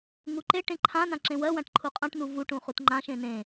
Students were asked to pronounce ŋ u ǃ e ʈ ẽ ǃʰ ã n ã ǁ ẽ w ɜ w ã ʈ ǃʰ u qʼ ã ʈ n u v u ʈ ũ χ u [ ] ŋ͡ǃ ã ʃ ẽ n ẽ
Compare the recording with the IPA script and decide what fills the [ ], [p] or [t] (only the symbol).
t